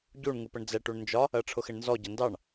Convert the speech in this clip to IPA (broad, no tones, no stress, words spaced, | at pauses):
ɟuɳ ŋupəɳd͡zɛ ʈuɳnd͡ʒɒ | ɜʈ͡ʂʰʊxɪɳnzɔ ɟʌndɑɳ